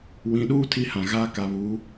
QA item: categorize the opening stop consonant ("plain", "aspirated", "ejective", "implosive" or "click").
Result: implosive